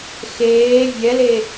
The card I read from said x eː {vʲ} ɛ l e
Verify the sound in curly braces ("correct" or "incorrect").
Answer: correct